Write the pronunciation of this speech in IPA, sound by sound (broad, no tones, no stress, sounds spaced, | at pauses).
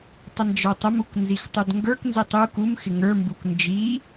tˤ ə n d͡ʒ ə˞ tˤ ə m u k n z i x tˤ u d ŋ ɡ ə˞ k n z i tˤ u k u m x ɪ ŋ ə˞ m b u k n d͡ʒ i